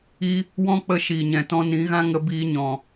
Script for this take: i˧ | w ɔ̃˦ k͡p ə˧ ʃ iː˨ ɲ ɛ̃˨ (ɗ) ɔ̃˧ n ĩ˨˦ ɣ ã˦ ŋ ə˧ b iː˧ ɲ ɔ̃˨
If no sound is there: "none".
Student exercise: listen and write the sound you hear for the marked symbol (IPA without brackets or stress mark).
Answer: t